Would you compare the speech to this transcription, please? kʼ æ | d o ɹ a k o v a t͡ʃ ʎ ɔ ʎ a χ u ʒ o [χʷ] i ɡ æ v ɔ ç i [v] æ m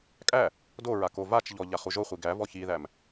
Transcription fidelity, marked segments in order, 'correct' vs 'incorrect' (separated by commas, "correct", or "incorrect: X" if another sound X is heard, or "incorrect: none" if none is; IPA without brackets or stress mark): correct, incorrect: ð